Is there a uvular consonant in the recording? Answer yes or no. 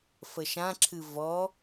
no